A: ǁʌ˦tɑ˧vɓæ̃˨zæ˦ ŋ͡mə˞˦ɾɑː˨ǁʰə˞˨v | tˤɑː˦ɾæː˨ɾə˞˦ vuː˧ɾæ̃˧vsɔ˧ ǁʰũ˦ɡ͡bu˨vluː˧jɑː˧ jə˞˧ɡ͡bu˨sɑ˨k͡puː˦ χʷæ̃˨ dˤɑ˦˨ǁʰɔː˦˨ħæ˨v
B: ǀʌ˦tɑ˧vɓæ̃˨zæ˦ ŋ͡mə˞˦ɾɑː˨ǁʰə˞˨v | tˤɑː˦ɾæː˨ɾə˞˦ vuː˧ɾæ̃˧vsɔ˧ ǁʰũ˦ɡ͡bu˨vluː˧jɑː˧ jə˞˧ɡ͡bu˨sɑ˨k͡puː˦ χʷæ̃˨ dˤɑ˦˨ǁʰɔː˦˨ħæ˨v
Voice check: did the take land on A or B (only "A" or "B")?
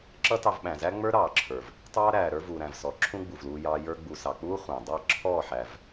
A